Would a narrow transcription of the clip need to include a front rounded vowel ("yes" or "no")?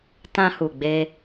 no